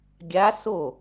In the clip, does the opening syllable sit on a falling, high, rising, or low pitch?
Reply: rising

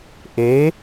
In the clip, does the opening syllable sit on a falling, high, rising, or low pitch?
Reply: rising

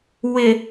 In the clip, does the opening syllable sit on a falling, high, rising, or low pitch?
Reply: low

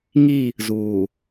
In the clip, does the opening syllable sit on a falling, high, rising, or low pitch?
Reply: falling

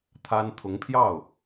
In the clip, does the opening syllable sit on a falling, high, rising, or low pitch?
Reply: high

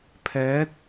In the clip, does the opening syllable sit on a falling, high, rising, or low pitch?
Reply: rising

